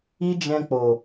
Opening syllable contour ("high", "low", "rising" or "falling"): high